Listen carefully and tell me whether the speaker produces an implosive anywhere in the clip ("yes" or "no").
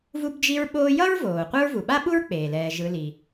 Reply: yes